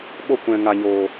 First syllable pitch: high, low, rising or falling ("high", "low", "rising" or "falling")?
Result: falling